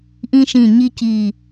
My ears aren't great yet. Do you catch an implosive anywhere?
no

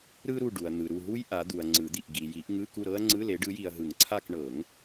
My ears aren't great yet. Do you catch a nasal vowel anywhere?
no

